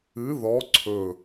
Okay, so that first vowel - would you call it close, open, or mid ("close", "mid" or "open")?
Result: close